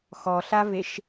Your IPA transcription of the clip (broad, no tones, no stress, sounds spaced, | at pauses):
x ɔ ɬ a v e ʃ